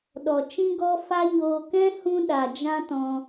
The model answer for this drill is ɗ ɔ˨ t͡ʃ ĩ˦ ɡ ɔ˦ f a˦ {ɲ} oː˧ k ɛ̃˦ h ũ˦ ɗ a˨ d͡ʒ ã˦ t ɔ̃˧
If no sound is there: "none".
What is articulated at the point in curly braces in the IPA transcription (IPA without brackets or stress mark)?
ɲ